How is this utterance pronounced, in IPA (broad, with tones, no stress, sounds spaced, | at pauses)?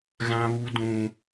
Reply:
ɣ ã˦ β u˦ d ũ˦